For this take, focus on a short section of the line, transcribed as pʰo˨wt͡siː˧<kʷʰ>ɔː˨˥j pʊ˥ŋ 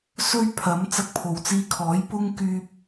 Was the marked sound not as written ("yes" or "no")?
yes